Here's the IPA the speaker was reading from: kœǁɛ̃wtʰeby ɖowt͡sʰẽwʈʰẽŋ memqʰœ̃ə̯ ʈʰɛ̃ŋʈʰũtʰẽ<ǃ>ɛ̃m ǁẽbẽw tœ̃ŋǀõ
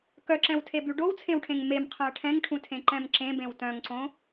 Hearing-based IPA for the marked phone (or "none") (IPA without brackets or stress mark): ǃ